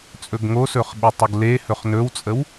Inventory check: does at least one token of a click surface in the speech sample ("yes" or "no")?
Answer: no